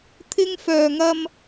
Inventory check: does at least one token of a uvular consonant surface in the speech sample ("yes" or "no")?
no